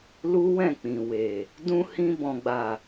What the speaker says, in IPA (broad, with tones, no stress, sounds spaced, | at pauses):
l u˦ w ɛ̃˦˨ k͡p ĩ˨ w e˨ | d ũ˧ h ĩ˧ b ɔ̃˨ ɡ͡b a˨